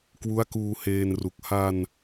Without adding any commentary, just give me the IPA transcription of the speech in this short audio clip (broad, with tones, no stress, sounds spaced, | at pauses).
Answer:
k w u˦˥ a̯ k uː˧ h eː˧ n r u˨˩ k̚ h a˧ n